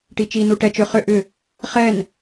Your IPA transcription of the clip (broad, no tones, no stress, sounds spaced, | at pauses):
ʈ i t͡ʃ i n u ʈ ɛ t͡ʃ ʏ χ ʏ ʔ ʏ | χ ɛ n